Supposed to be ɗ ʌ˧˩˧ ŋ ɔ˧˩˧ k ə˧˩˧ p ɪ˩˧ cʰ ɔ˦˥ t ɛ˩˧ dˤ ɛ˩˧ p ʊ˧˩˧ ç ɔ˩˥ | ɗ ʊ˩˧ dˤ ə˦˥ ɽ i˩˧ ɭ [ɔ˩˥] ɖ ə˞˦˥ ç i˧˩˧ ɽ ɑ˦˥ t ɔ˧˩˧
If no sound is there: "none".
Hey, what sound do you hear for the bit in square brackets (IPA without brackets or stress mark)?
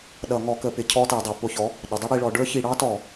ɔ˩˧